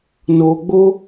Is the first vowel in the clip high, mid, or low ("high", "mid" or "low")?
mid